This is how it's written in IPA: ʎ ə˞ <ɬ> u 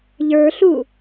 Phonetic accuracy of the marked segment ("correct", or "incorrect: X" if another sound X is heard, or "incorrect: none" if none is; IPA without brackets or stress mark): correct